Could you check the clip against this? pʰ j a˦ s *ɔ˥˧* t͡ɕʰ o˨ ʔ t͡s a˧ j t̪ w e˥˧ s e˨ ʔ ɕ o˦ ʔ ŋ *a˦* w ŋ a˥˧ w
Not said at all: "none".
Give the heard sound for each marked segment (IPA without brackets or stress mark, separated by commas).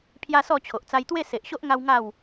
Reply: ɔ˥˧, a˦